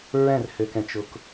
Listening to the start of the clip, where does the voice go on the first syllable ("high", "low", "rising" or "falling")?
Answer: falling